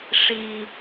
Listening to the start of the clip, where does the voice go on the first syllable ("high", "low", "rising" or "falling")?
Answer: low